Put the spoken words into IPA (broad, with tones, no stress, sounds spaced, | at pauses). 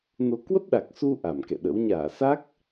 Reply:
n o˧ k w ə˦˥ p̚ ɗ a˨˩ k̚ s u˧ ʔ a˧˩ m k ɛ̰˧˨ ɗ ə̰˧˥ w ɲ aː˧˩ s a˦˥ k̚